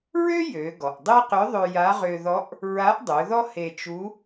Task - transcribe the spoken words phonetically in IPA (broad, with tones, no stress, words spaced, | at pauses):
ɹø˥ jø˩˧ ɡɔ˩ʔdˤe˥qʏ˧˥ ðˤø˧ja˧˥ ʁø˧ðɔ˧˥ʔ | ɹa˧˥ʔdˤø˩˧ðɔ˥ he˧t͡ʃu˧˥